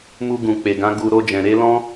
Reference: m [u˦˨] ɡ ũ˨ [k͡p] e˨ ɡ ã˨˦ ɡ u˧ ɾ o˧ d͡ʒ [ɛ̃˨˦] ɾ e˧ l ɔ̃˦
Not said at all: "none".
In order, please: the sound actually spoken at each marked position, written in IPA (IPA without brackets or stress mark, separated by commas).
u˧, k͡p, ɛ̃˨